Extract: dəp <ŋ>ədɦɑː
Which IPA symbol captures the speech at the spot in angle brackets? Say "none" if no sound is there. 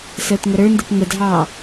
ŋ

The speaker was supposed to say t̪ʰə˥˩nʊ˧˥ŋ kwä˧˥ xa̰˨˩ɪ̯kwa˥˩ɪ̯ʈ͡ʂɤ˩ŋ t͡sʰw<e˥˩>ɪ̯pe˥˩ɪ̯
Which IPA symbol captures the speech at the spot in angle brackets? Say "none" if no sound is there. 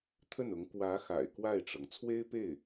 e˥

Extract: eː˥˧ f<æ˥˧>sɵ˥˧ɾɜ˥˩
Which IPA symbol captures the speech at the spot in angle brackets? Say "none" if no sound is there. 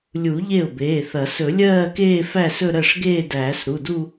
æ˥˧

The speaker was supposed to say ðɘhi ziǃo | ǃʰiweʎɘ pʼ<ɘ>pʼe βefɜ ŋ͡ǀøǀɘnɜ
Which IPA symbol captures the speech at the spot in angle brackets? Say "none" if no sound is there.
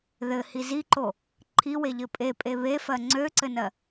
e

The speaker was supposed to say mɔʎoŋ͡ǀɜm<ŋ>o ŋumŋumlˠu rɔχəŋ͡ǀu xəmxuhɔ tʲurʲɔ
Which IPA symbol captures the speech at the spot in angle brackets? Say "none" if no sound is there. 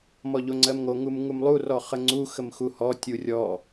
ŋ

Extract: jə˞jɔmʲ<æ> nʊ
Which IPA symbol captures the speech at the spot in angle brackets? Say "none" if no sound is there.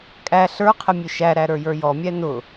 æ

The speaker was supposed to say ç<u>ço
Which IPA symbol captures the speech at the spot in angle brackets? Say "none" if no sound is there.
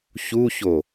u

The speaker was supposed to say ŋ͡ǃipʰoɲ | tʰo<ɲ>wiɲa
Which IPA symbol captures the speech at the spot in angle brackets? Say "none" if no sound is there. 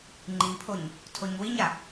ɲ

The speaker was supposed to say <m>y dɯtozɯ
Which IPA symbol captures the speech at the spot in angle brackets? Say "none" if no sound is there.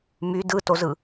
m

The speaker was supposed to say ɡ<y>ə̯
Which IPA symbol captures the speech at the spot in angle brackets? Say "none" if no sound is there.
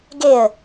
e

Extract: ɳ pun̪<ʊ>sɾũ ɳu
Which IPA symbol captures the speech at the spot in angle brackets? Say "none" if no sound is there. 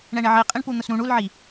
ʊ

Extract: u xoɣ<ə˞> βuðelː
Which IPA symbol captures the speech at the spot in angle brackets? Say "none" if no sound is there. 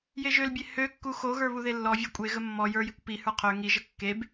ə˞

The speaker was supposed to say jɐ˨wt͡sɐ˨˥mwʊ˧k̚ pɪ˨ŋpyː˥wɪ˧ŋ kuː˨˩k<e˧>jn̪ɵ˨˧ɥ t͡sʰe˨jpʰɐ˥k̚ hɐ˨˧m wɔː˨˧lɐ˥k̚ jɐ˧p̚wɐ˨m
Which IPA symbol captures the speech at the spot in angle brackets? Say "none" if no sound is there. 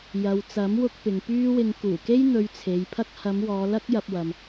e˥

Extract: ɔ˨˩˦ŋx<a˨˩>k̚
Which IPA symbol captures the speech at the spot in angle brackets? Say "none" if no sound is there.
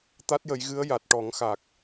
a˨˩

